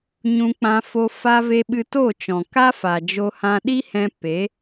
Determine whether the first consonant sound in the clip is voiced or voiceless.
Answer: voiced